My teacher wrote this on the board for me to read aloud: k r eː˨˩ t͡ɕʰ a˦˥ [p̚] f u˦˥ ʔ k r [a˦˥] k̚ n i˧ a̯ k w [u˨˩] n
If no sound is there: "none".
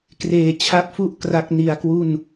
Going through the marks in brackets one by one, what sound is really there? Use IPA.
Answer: p̚, a˦˥, u˥˩

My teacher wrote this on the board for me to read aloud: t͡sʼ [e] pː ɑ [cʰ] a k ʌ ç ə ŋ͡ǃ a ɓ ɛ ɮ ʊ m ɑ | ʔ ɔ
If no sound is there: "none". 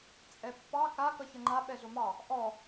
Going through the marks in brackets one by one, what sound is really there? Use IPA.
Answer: ɛ, k

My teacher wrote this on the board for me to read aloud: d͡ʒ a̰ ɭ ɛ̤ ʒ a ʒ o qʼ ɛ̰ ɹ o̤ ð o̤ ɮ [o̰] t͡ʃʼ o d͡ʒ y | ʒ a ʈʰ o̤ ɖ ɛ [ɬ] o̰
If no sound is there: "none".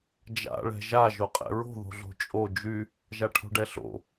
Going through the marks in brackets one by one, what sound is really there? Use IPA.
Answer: o̤, ɬ

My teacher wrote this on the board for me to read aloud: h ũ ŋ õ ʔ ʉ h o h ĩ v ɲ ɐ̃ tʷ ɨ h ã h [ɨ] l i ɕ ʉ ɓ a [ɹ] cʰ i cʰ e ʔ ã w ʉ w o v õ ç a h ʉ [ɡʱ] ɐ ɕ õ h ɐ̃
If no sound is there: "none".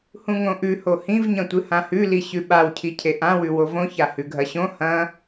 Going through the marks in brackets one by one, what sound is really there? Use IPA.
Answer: ʉ, w, ɡʱ

